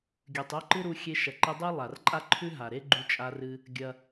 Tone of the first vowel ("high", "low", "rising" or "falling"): low